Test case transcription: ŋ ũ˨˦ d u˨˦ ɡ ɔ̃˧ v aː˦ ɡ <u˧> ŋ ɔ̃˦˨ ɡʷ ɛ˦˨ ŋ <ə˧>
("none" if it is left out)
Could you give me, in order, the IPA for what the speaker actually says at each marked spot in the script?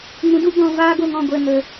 o˧, ə˧

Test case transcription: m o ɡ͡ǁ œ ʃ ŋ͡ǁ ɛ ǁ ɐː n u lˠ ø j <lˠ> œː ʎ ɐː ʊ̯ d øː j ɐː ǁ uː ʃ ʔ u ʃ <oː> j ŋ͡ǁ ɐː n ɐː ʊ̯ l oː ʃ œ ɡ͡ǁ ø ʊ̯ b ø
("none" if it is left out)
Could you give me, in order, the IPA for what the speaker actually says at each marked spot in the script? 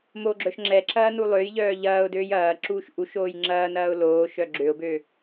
ʎ, oː

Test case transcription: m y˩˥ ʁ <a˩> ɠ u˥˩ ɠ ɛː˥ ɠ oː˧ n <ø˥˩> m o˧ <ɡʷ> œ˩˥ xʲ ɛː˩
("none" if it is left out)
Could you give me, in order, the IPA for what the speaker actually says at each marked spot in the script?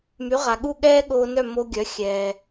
a˩, œ˥˩, ɡʲ

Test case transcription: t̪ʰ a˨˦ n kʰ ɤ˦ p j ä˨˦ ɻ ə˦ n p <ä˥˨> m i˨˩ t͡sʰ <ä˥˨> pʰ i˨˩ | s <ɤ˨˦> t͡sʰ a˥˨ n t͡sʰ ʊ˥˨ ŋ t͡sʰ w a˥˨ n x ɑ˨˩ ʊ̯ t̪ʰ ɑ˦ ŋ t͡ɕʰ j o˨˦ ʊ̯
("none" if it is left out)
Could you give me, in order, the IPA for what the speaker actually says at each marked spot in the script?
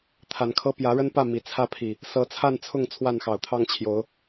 ä˥˨, ä˥˨, ɤ˨˦

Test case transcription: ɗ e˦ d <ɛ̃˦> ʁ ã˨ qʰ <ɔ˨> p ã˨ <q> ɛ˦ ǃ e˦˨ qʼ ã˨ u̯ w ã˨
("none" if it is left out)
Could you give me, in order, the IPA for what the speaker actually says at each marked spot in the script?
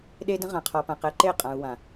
ə̃˦, ɔ˨, q

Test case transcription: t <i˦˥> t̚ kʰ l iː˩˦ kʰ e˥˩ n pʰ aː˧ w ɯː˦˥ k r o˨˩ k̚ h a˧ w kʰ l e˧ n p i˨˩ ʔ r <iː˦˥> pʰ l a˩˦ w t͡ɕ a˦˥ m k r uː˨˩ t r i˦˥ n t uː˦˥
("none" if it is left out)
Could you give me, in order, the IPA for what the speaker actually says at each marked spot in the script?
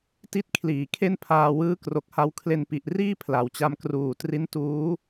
i˦˥, iː˥˩

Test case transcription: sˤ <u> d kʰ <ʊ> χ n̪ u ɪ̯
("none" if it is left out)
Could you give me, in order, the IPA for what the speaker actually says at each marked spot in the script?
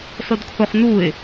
u, ʊ

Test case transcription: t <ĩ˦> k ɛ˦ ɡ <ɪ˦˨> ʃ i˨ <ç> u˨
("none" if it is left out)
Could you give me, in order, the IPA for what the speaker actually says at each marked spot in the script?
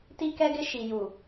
i˦, ɪ˦, j

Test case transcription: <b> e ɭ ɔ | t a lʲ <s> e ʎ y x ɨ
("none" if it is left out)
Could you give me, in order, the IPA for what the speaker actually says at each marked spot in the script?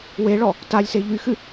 w, s

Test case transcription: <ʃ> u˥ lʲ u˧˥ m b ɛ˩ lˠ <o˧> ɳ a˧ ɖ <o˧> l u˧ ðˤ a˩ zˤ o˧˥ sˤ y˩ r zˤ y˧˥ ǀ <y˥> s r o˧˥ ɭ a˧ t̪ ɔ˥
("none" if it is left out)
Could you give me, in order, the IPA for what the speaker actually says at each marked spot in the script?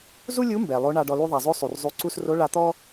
z, o˧˥, ɔ˧, u˥

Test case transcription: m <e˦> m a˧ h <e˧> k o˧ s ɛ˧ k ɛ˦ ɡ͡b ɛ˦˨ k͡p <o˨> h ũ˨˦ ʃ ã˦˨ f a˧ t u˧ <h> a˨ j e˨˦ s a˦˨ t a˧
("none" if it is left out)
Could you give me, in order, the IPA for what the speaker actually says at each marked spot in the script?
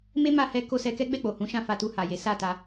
e˦, ɛ˧, o˨, h

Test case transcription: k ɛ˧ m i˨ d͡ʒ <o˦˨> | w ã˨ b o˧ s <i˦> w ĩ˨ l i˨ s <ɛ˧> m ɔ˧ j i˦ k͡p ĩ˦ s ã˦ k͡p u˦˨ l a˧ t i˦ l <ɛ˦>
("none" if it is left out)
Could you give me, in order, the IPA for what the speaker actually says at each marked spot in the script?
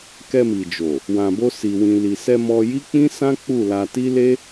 o˨, i˨, ɛ˧, e˦

